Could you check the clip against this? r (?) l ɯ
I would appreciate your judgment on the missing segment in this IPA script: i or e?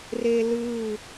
e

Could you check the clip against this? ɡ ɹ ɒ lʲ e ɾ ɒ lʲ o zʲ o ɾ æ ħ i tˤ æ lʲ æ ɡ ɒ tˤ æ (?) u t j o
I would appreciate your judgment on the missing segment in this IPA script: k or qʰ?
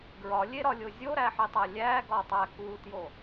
k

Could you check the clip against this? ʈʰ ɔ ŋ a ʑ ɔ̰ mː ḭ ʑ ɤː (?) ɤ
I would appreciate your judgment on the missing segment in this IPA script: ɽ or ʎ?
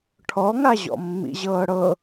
ɽ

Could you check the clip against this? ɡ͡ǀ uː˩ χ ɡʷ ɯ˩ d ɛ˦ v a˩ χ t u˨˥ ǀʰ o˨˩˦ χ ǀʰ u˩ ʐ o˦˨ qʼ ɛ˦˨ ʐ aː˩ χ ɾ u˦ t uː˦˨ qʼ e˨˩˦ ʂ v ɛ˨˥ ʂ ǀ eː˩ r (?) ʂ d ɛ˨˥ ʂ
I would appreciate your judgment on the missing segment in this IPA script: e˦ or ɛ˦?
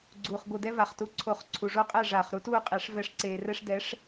ɛ˦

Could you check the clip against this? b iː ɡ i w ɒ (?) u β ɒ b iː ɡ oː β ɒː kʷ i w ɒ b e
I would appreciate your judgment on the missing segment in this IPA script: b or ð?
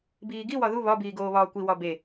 ð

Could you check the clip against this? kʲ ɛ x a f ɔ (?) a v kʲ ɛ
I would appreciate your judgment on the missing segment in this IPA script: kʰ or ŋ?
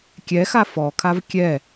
kʰ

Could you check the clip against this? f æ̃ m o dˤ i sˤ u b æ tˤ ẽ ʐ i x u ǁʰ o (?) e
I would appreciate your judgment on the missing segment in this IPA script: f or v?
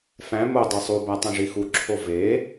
v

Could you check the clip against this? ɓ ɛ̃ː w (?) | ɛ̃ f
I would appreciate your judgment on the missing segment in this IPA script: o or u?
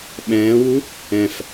u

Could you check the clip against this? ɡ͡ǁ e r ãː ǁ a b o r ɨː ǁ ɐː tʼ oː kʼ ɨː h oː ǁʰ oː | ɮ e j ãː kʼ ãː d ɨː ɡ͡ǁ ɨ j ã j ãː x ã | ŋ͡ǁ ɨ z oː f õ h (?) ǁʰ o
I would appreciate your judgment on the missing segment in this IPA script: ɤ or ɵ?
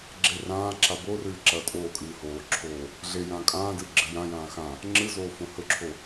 ɵ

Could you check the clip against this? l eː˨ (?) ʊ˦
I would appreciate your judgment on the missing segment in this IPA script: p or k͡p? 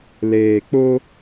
k͡p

